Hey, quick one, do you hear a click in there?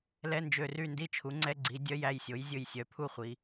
yes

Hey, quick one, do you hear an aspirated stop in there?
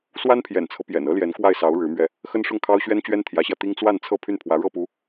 yes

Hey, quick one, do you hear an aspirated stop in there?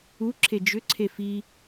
yes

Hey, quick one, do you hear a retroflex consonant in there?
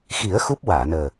no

